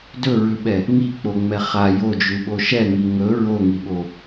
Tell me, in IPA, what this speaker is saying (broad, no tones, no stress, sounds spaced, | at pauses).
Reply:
d ɵ ɹ ʉ ɓ ɛ | ŋ i k͡p o ŋ͡m ɛ χ a j o d͡ʒ ʉ ɓ o ʃ ɛ ŋ i ŋ ɵ ɹ o ŋ i ɓ o